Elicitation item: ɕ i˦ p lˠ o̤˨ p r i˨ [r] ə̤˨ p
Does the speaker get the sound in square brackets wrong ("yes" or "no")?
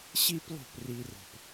no